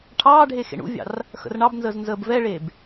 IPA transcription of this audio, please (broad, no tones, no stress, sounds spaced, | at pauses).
ʈʰ ɑː ɖʱ e x ḛ ɳ ṵ vʲ ɑ̰ r | x ə̰ r ɳ ɑ b n z əː z n z əː b v ɛ ɭ eː b